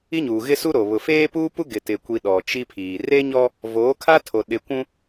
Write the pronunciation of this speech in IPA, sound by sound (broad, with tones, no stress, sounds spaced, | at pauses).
i˦ ɲ uː˨ ɣ ɪ˦ s u˦ ɾ o˨ β ʊ˨ f eː˦ p u˦ p u˦ ɡ ɪ˨ t ɪ˨ kʷ i˨ ɗ ɔ˨ t͡ʃ i˦ pʰ iː˨ r e˦ ɲ ɔ˦ | v oː˨˦ kʰ a˦ tʰ o˨ ɗ ɪ˨ kʷ ũ˦